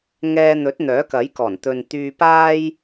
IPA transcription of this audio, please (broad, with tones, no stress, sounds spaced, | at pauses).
ŋ ɛː˧ n̪ ɵ˨˥ t̚ n̪ œː˨˥ k ɐ˨˥ j k ɔː˨˩ n t̪ ɵ˨ n t̪ yː˧ p aː˥ j